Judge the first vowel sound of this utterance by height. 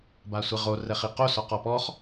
low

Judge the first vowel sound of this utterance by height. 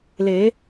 mid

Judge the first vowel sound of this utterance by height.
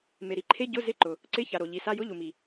mid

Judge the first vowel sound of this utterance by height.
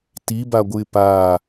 high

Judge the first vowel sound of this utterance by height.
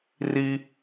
high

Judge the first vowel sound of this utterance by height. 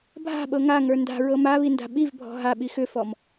low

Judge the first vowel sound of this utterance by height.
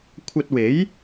low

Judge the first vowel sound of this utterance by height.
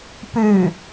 high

